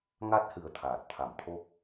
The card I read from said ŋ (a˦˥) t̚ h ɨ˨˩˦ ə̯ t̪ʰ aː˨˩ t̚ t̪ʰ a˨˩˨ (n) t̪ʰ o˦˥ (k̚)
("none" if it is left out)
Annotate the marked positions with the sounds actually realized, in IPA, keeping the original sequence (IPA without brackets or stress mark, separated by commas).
a˦˥, m, k̚